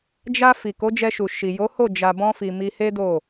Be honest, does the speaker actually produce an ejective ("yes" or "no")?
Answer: no